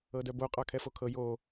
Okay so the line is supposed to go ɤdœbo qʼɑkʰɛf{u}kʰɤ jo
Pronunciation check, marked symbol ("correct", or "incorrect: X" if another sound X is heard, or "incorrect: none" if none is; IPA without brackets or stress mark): incorrect: o